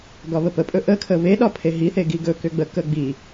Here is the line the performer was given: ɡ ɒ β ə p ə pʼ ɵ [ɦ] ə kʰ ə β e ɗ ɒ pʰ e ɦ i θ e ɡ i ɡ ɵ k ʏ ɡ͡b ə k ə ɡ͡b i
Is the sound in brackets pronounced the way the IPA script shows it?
no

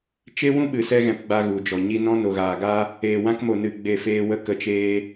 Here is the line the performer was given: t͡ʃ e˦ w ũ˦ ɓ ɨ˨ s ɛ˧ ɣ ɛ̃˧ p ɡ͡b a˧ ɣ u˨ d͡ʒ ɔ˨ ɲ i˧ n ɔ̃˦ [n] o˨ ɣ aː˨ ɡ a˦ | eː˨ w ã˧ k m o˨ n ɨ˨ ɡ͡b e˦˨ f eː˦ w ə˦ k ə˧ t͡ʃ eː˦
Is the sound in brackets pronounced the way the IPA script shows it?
yes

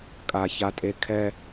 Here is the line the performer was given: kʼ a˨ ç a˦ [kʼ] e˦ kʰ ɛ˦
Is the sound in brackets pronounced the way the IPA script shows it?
no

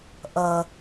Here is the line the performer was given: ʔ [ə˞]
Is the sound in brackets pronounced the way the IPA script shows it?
no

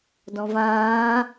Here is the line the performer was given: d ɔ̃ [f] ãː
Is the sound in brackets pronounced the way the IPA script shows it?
no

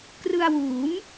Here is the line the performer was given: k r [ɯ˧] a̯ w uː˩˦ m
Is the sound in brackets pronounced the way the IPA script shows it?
yes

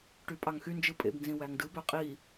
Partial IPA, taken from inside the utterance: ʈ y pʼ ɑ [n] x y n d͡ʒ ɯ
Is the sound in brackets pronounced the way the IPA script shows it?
no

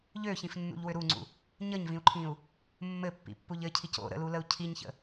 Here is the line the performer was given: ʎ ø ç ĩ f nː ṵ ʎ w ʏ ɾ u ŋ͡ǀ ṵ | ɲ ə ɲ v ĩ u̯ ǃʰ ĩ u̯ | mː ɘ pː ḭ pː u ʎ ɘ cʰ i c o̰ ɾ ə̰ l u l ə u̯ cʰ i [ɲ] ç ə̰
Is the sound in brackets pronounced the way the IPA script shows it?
yes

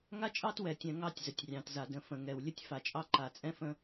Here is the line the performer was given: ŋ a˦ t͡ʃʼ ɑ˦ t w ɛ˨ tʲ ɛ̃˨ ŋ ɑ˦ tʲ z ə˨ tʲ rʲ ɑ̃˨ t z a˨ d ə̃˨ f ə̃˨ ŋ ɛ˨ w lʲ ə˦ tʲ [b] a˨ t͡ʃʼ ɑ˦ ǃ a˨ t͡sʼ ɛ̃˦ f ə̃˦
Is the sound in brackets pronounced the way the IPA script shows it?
no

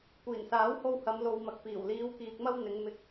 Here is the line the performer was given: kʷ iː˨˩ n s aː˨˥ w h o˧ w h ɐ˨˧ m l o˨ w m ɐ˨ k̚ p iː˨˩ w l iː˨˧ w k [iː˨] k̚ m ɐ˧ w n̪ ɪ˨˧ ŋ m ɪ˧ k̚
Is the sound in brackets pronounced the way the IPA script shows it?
yes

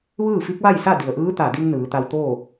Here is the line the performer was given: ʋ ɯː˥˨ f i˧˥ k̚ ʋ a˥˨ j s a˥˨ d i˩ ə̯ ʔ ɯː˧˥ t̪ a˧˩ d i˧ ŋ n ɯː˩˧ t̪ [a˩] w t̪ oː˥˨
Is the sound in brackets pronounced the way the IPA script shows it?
no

